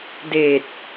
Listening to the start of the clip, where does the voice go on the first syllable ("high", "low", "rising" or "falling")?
low